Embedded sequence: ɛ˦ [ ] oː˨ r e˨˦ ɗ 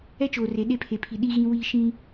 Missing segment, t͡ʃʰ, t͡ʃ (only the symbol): t͡ʃ